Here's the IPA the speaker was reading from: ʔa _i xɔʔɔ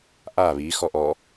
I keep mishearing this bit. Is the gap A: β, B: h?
A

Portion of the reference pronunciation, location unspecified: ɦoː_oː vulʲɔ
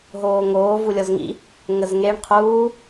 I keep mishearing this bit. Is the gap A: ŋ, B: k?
A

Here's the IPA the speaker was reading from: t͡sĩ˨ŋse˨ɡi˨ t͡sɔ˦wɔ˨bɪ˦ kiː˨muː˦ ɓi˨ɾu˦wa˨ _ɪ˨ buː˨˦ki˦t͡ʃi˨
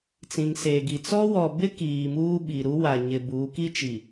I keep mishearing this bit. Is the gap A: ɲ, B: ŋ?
A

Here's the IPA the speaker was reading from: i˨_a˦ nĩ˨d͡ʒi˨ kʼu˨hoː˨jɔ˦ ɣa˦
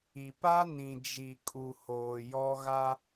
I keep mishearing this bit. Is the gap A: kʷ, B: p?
B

